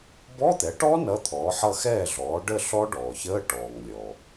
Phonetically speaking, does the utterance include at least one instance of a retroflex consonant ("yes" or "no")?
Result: yes